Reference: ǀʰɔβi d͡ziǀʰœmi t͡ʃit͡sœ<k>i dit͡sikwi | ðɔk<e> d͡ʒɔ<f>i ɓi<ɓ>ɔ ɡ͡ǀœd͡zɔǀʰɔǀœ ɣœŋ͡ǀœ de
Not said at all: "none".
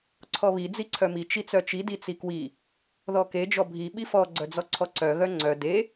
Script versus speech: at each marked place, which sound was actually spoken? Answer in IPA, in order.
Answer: t͡ʃ, e, bʱ, f

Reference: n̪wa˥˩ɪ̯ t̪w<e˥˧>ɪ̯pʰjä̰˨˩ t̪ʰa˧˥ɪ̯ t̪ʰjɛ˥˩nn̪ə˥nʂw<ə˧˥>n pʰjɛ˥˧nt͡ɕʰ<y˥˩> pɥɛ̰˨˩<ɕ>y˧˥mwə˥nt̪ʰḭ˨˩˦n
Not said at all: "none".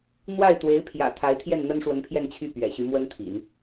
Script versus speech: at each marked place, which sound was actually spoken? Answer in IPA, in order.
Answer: e˧˥, ə˧˥, y˥˩, ɕ

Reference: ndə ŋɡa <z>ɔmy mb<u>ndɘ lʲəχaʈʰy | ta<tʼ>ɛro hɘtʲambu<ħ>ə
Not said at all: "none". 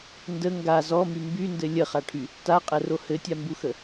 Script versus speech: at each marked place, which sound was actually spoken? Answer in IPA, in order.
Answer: z, y, qʼ, x

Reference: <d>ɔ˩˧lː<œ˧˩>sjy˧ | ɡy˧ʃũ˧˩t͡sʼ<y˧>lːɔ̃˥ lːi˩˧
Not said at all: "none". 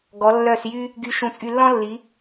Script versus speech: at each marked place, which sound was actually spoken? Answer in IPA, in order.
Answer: ɡ, œ˧˩, y˧

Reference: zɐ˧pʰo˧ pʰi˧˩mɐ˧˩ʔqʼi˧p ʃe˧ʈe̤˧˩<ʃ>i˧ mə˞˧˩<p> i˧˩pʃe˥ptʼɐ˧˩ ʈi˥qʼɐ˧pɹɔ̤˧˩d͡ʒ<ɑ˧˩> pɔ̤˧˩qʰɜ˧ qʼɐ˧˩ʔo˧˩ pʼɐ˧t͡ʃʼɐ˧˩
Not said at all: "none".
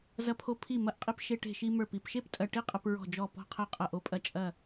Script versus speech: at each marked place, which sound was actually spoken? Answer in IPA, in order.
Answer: ʃ, p, ɔ˧˩

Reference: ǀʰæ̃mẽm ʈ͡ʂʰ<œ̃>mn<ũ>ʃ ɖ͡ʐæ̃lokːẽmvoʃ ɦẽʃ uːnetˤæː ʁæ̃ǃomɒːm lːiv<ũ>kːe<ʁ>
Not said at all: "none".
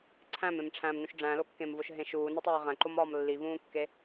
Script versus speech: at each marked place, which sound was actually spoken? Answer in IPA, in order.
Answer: æ̃, ũ, ũː, none

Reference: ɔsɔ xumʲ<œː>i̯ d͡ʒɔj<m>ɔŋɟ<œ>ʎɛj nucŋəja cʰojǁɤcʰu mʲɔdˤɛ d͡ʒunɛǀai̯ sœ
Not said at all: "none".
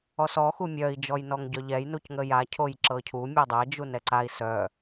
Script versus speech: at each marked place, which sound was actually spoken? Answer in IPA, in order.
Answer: œ, n, œ

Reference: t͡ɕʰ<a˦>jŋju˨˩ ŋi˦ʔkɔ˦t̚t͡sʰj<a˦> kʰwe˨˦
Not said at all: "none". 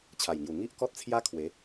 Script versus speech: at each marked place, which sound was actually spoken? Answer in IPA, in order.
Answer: a˨˩, a˦

